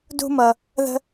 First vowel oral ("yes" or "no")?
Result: yes